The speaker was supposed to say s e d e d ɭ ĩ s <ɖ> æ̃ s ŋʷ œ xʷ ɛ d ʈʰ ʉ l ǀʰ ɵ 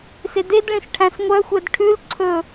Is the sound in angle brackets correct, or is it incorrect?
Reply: incorrect